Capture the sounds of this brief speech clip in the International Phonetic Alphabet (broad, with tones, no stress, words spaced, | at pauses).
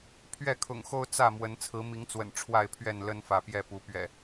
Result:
pʰɥɛ˥˨kʰʊ̰˨˩ŋxo˦ʊ̯ t͡sä˥˨mwə˨˦n t͡sʰɹ̩˨˦mi˨˦ŋt͡swə̰˨˩n ʈ͡ʂʰwa˥˨ɪ̯pʰɥɛ˥˨nlə˦n fä˨˦pjɛ˥˨pu˨˦ pɥɛ̰˨˩